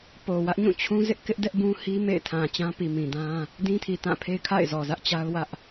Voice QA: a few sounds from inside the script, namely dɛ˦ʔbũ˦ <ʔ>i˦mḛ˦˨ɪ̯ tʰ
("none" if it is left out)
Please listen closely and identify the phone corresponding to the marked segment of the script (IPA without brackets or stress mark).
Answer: h